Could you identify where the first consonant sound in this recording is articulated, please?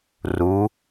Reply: alveolar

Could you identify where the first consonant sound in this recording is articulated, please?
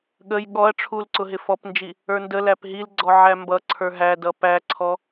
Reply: velar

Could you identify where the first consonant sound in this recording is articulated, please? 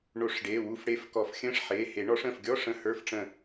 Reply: retroflex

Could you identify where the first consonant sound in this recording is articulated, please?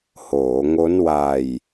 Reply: glottal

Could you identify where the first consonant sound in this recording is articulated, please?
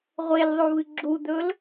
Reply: uvular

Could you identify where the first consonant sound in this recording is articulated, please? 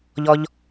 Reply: palatal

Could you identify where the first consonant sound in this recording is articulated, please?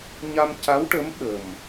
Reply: palatal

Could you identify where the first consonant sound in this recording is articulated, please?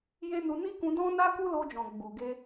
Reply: palatal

